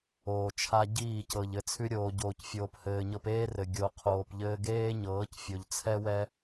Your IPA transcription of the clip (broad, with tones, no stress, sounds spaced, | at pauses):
oː˨ t͡ʃʰ a˦ ɟ iː˦˨ c ɤ˨ ʎ ɘ˨ t͡sʰ ʉ˧ ɾʲ oː˨ ɟ oː˨ c fʲ oː˨ p h ɘː˨ ɲ ɤ˧ p eː˦ r ɘ˨ ɡʲ o˨ qʰ oː˨ p ʎ ɘː˧ ɡ eː˦ ɲ ɤː˨˦ c fʲ o˨ ʎ t͡sʰ ɛ˦ w ɛ˦